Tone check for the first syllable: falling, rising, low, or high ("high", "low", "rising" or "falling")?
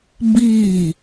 falling